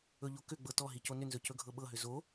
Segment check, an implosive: present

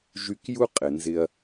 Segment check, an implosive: absent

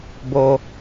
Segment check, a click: absent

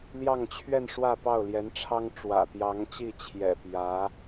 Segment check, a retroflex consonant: present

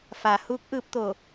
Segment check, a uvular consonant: absent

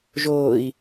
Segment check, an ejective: absent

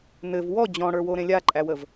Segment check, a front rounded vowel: absent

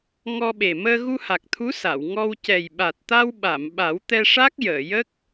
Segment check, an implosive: present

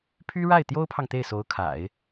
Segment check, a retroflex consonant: present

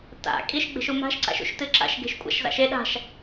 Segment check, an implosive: present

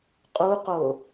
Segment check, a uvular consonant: present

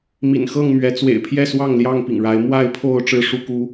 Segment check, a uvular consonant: absent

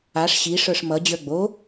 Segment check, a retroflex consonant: present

